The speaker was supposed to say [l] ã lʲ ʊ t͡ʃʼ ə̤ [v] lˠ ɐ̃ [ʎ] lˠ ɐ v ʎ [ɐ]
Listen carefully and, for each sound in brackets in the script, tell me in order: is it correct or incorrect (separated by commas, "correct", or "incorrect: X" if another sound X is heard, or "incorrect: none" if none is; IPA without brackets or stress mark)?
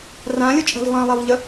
incorrect: r, correct, incorrect: none, incorrect: ə